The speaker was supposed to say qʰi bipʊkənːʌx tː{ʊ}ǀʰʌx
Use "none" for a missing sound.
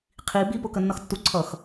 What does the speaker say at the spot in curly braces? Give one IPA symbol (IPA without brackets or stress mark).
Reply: u